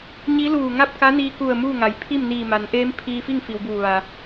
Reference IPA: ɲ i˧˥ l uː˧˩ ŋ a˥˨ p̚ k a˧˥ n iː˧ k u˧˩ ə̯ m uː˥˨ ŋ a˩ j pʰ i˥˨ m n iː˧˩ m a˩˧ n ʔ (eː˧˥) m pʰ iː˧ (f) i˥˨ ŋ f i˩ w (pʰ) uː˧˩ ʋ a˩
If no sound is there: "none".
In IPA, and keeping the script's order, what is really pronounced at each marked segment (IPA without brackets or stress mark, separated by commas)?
eː˧˥, f, b